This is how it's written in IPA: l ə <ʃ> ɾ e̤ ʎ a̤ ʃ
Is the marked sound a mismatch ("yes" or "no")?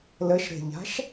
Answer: no